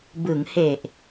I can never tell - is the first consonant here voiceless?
no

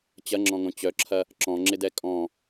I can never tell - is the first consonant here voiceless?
yes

